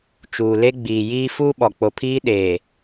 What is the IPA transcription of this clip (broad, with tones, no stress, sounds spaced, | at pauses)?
t͡ʃ uː˨ l e˦ ɡ͡b iː˨ j iː˦ f uː˦ ɓ ɔ˨ k͡p o˨ pʰ iː˦ ɗ eː˨